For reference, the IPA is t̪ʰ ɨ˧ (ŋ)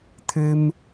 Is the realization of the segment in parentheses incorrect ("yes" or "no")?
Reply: yes